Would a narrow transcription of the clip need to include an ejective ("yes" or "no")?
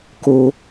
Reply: no